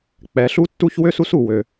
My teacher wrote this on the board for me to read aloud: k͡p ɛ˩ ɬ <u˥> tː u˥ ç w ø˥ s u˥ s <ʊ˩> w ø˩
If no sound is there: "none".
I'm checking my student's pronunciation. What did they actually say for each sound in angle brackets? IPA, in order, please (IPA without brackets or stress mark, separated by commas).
u˥, u˩